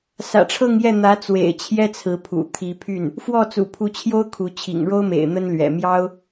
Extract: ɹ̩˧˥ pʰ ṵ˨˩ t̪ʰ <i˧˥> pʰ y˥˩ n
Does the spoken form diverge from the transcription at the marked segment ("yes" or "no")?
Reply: no